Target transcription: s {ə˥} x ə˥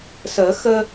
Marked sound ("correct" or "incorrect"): incorrect